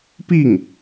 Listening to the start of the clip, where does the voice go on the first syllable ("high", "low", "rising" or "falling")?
falling